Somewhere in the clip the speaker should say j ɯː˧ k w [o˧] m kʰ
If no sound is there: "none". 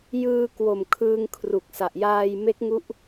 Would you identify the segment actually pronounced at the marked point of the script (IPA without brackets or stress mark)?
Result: o˨˩